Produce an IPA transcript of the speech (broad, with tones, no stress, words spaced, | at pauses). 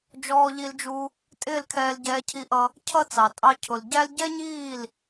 d͡ʒɔː˧ʎi˧ld͡ʒu˧ | tʼɪː˦˨lkʰɛː˧lɟɛː˧ cʰi˧ʔʌ˧ | cʰʌ˦t͡sɑ˨ tʼɑ˧cʰʊ˨l ɟæ˦l ɟɛ˦ɲiː˦˨l